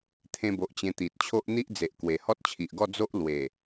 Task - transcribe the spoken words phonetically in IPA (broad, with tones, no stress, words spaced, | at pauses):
t̪ʰẽ˧bo˨ʔ t͡ɕẽ˧t̪i˨t̚t͡ɕʰo˦ʔ n̪i˦ʔd͡ze˨ʔ kwe˨˩hɔ˦t̚t͡ɕʰi˨ʔɡɔ˥˧ d͡zo˦ʔ lwe˨˩